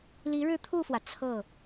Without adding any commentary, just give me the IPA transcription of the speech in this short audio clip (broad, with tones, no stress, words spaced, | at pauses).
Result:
li˧˥ɻɻ̩˥˧t̪ʰu˥˩fwä˩ t͡sʰɤ˥˩